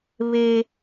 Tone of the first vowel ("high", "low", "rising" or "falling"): high